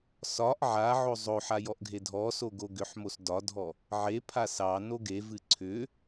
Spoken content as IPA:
s ɒ ʔ ʕ a ʕ o zˤ o ħ a j ɔ ʔ ɡʱ e dʱ ɔ s o ɡ o ɡ ʏ ħ m o s d ɒ dʱ ɔ | ʕ e pʰ a s ɑ n o ɡ e v ɨ ǀʰ ʏ

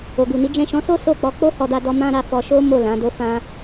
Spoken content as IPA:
o˨ ɡ u˨ n i˨˦ d͡ʒ ɛ̃˦˨ ʃ ɔ̃˨˦ s o˦ s o˦˨ k͡p ɔ˨˦ k͡p o˦ h ɔ˧ d a˧ d ɔ˧ m ã˦ ɾ a˦˨ f ɔ˧ ʃ o˦ m o˦˨ l ã˨˦ d o˦ f ã˦

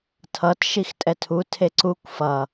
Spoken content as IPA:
tʰ ʌ t ʃ i x tʼ ɛ tʰ u tʰ e ǀ u kʷ f ʌ

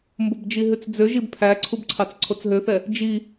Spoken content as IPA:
m b o b d͡ʒ i ɦ ʉ t͡s d͡z ø ʒ i b pʰ æ ǀʰ u b ǀʰ ɑ t͡s ǀʰ o t͡s ɦ ø θ ɛ | d͡ʒ i

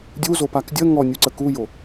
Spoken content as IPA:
dʲ u z o p a k dʲ ə ŋ ɔ nʲ u ǀ ə k u j o

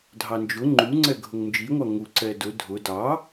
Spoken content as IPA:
dʱ ɑ n d͡ʒ ʊ ŋ͡ǃ u ŋ͡ǀ ɛ ɡʱ ʊ ŋ n d͡ʒ i ŋʷ ɑ ŋ u ǀ ɛ d ʊ dʱ ʊ d ɑ

